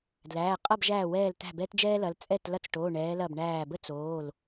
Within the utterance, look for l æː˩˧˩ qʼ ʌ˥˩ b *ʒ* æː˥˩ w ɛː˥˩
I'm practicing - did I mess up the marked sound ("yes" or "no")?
no